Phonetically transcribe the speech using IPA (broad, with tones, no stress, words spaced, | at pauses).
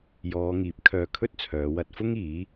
jɔː˨˧ŋiː˨˥p̚ kʰœː˧kʰɵ˥t̚t͡sʰœː˨˧ wɐ˧t̚fʊ˥ŋ iː˨˥